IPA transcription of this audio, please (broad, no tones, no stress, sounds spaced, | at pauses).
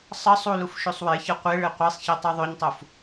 sˤ ʌ sˤ u l u f ʃ ʉ sˤ w e ç ʌ qʷ e ɭ e qʷ e sˤ ç i tˤ u ðˤ ʉ ɲ tˤ u f